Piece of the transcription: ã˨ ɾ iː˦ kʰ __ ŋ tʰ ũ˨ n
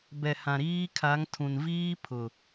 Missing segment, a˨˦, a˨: a˨˦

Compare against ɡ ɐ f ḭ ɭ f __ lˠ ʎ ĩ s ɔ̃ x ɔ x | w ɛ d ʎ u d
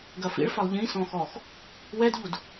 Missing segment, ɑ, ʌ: ʌ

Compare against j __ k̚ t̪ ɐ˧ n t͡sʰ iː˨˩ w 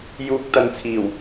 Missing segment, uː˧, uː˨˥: uː˧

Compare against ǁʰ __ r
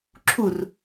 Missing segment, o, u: u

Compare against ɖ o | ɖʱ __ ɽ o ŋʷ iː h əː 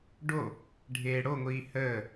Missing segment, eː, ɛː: eː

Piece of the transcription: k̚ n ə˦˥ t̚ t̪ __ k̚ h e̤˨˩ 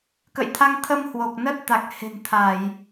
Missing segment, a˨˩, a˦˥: a˨˩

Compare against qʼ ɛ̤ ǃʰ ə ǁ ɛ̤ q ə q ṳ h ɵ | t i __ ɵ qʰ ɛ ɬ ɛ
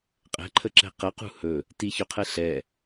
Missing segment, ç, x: ç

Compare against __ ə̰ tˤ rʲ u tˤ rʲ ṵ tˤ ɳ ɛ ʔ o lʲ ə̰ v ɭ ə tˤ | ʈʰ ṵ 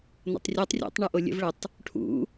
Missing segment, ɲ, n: n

